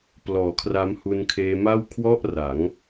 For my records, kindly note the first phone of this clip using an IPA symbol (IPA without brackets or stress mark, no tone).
p